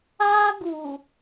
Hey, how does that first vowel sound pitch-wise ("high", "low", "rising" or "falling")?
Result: high